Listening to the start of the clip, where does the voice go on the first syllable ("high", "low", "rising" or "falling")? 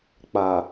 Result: low